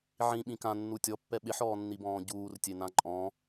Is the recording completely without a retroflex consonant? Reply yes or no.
yes